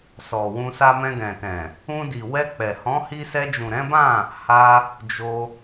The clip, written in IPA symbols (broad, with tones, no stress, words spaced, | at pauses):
sɔ˨wũ˧sa˦ mɛ̃˧ɡɛ̃˨tɛ̃˨ | ũ˧ di˨wɛ˧ k͡pɛ˨ hɔ̃˨˦hi˧sɛ˧d͡ʒũ˨ ɾɛ̃˨˦bã˦˨ | ha˧ | d͡ʒo˧